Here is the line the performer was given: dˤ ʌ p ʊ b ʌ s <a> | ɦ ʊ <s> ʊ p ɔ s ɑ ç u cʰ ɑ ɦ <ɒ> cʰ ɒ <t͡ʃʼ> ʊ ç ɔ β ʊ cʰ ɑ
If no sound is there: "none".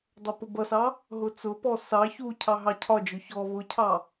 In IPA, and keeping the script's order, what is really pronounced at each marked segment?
ɑ, t͡s, ɑ, d͡ʒ

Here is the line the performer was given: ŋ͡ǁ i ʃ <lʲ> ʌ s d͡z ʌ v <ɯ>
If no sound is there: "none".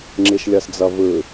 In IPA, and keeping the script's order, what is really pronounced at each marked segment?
lʲ, ɯ

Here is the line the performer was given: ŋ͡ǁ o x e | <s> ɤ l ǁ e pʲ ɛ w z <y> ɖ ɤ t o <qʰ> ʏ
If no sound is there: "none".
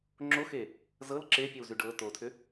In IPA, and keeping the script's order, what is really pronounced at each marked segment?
z, y, tʰ

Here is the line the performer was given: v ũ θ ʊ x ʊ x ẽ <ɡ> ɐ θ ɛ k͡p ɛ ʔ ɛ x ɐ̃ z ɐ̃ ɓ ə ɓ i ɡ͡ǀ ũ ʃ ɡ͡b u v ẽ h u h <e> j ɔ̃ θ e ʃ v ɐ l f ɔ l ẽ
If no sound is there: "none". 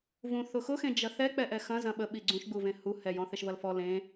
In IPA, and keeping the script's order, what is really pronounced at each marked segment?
d͡ʒ, ɛ

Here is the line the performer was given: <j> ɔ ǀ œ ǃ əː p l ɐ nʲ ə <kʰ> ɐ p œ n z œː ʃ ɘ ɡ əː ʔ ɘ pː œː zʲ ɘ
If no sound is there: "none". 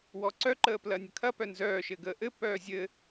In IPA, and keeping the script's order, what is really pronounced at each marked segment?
w, kʰ

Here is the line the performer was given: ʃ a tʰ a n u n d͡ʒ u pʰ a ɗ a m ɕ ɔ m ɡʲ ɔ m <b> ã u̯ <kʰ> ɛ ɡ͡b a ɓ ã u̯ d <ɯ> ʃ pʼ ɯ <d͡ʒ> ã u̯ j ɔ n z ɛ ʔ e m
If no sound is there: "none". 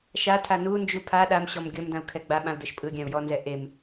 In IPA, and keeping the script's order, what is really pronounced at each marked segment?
d, kʰ, ɤ, ɡʲ

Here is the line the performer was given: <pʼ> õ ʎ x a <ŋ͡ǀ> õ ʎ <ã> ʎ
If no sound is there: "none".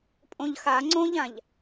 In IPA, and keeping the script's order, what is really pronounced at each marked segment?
pʼ, ŋ͡ǀ, ã

